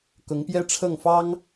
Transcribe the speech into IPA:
k ʊ˧˥ ŋ p j ɛ˥ ʈ͡ʂʰ ɤ˥˩ ŋ f ɑ˥ ŋ

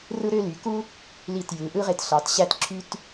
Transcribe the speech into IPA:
r ɯ˥ ɾ ø˥ l y˩˧ k u˥ | l i˧˩ t j ɯ˩˧ ʔ ɯ˥ ʁ e˧ t ɬ ɑ˩˧ t ɕ æ˥ t ǁʰ y˥ t

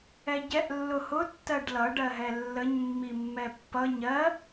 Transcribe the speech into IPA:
ɛ ɟ ɛ ʔ lː ʊ h ʊ tː ɜ ɖ l ʌ ɖ ɜ ɦ ɛ lː ə ɲ mː i mː ɛ pː ʌ ɲ ɜ

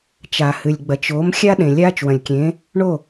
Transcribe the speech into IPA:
t͡ʃ a˩ h ɨ˩ lʲ ɡ͡b ɐ˩ t͡ʃ o˩˥ m xʲ a˥ ɗ ẽ˩ lʲ aː˥ t͡ʃ w ɐ̃˩ lʲ kʲ ẽ˩˥ | ɳ o˥˩

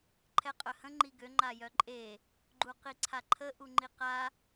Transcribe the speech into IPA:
ǃʰ ɛ qʼ œ h ə̃ ŋ͡ǃ i ɡ ø ŋ͡ǃ a j œ ǃʼ e | ɡ͡ǃ u q i ǀʰ a ǃʰ ə ʔ u ŋ͡ǃ i q a

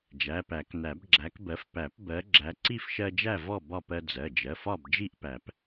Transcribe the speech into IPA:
d͡ʒ æ˩˧˩ p æ˨˩˦ k n æ˨˩˦ b ɡ͡ǁ æ˨˦ k b ɜ˨˦ f p æ˨˩˦ p b ɜ˨˦ ɡ͡ǁ æ˨˦ ǀ i˥˨ f ʃ ɜ˦ d͡ʒ æ˥˨ v ɔ˥˨ b ɒ˥˨ p ɜ˦ d͡z ɜ˩˧˩ d͡ʒ ɜ˩˧˩ f ɒ˥˨ b d͡ʒ i˥˨ ʔ p æ˨˩˦ p

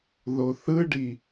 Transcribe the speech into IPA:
ð o θ ɯ ɖ i

